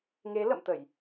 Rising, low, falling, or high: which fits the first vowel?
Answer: rising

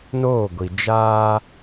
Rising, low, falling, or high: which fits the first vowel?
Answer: falling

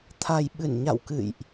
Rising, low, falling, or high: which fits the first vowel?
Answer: low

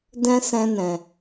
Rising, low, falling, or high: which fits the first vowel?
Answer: high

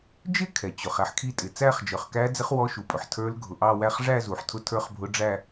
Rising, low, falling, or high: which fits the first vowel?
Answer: falling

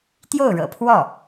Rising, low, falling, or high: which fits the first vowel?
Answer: falling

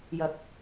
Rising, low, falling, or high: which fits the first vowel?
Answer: low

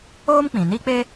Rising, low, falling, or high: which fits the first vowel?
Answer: high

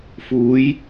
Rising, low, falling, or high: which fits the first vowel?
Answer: rising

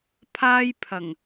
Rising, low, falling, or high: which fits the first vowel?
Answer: high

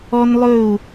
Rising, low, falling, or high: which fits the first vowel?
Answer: high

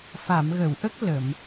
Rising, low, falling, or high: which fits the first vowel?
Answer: low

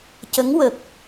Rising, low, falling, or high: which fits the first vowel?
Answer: rising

